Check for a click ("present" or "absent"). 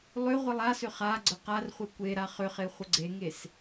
present